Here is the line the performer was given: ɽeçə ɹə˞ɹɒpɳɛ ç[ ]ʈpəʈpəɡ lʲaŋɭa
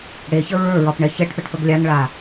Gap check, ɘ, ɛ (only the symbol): ɛ